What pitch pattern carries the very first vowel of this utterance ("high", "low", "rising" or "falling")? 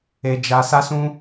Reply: high